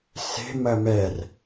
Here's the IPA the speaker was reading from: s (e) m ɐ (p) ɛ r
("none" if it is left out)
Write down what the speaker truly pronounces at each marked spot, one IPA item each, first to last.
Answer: e̤, m

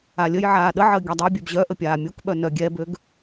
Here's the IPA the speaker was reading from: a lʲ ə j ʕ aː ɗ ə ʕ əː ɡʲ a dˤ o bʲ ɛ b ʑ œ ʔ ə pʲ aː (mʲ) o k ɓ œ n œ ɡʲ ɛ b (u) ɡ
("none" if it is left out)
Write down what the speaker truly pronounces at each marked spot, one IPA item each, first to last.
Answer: mʲ, ø

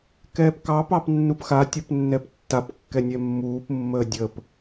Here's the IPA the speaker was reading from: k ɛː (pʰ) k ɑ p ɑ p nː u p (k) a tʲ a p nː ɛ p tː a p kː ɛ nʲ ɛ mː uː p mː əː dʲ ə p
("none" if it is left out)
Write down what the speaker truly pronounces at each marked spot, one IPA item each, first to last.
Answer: p, x

